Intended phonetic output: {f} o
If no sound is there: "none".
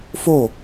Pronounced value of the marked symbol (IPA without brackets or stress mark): f